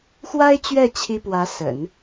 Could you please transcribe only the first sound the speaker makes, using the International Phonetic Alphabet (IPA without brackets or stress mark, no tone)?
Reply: x